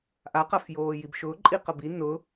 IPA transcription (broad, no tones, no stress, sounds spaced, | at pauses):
ʔ a q a f j oː j i b ʃ ʊː ǃʼ i q ɐ b i n ʊ